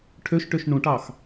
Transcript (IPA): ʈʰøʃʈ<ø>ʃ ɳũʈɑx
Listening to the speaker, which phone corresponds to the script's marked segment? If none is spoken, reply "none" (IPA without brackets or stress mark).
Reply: ø